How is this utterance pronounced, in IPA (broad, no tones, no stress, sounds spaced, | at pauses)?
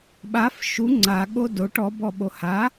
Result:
ɓ a f ʃ u ŋ͡ǀ a ɠ o d o ʈ ɔ b ɔ ɓ o h a